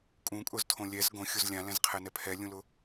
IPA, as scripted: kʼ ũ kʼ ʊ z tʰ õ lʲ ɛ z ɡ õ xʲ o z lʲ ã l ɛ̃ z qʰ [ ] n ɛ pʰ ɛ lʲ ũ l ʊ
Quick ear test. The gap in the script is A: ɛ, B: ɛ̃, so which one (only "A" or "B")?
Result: A